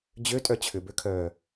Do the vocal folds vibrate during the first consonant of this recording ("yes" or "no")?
yes